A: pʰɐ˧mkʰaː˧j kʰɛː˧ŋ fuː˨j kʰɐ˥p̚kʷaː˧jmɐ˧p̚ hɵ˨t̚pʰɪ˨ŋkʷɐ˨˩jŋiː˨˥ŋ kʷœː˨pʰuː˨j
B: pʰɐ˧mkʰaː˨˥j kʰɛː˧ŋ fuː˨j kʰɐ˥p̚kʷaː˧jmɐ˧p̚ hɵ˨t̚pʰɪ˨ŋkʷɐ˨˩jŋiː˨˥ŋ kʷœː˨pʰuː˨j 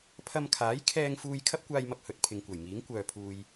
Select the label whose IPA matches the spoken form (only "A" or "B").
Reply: B